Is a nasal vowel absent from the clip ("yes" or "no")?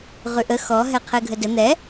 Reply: yes